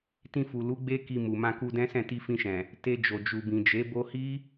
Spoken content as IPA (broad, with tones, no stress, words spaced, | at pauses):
tĩ˧fu˨lu˨˦ɡ͡be˦ ki˧mu˨ mã˧ku˧dɛ̃˦sɛ̃˦˨ ti˧fĩ˧ʃɛ̃˨ | te˧d͡ʒo˨ d͡ʒu˨bĩ˨d͡ʒe˨˦ bo˧hi˦